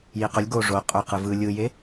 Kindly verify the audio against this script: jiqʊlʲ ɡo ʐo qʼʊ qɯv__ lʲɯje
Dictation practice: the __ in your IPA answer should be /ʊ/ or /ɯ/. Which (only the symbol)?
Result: ɯ